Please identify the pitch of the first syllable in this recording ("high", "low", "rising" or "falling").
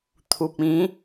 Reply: low